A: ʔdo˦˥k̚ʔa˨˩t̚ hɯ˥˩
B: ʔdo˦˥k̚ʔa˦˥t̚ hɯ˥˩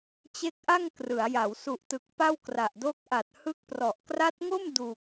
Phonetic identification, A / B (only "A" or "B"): A